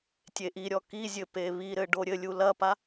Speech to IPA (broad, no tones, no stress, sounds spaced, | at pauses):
tʲ e ʔ i ɾʲ ɔ k i zʲ ɘ p e β i ɾ ɘ ɖ o ɾʲ ɘ lʲ u l ɐ p a